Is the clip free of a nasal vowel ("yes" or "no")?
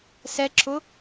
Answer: yes